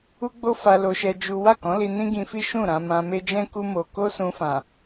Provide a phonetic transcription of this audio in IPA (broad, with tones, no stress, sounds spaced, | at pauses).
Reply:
u˦ ɡ͡b o˦ f a˧ l o˧ ʃ ɛ˧ d͡ʒ u˦ w a˦˨ k ɔ̃˨˦ l i˧ n ĩ˦ ɡ ĩ˧ f i˦ ʃ ũ˦˨ ɾ ã˧ m ã˧ m e˦ d͡ʒ ɛ̃˦ k u˦ m o˧ k o˦ s ũ˧ f ã˨